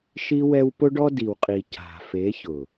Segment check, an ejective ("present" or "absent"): present